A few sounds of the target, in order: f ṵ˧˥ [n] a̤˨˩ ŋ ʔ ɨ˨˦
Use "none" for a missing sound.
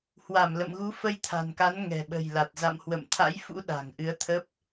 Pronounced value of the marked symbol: ɗ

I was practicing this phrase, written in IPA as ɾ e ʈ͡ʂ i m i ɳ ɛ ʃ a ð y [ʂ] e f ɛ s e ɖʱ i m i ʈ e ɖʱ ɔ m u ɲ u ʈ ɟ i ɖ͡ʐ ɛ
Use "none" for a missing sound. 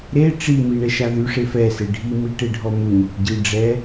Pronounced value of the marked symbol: ʂ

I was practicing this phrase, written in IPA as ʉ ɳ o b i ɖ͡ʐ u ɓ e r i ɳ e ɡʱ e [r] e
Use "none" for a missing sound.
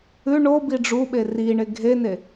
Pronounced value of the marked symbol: n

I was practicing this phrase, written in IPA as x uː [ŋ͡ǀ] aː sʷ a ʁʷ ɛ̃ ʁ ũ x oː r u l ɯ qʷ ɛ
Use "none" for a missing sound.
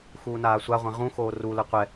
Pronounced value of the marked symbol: n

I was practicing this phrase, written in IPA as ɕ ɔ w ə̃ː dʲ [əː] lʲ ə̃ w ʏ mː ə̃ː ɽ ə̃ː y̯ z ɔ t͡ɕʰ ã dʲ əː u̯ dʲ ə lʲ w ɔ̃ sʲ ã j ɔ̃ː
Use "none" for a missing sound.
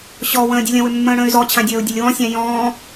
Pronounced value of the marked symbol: ə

